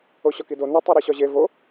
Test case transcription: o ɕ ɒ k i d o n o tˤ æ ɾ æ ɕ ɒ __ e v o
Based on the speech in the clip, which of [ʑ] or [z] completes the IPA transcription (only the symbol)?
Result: ʑ